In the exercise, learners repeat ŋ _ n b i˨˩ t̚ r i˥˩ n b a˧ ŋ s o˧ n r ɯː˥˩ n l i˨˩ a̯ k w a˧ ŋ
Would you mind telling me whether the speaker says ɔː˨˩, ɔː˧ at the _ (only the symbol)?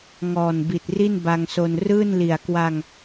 ɔː˨˩